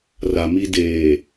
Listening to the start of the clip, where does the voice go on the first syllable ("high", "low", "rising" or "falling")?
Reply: low